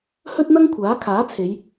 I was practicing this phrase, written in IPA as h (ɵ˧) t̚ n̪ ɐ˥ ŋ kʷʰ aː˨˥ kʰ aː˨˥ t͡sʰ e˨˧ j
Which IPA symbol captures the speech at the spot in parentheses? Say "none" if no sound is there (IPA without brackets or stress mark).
ɵ˥